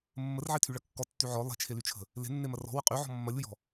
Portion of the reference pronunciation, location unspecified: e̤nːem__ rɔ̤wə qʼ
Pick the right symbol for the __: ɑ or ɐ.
ɐ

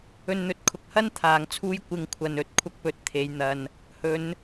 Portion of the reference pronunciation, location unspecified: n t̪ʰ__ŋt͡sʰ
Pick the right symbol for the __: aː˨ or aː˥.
aː˨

